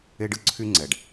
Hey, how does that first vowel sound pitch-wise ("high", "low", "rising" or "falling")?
high